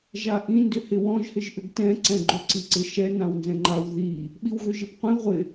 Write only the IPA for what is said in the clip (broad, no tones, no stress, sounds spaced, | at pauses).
ʒ a ʔ ĩ n d ʏ h ɪ w ɔ̃ ʒ h ɪ ʒ ʔ ʏ ɡ t ɛ̃ ǀ ɛ̃ ɡ͡ǃ ʏ ǀ i ǀ ɪ ʃ ɛ n ã w n z ɛ̃ ŋ͡ǃ a w ð i | ɓ i w ɣ ʏ ʒ ɪ p qʷ ĩ ʁʷ ɪ